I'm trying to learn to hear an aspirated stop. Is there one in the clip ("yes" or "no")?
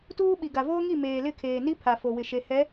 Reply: yes